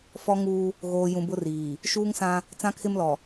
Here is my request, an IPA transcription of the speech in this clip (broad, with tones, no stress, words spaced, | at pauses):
fɔ˦ŋuː˦ | ɣoː˨ jũ˨bʊ˦riː˨ | ʃuː˦ŋsã˦ | t͡sã˦kʰɪ˦mlɔ˨